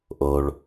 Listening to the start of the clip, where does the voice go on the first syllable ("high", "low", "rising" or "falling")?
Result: low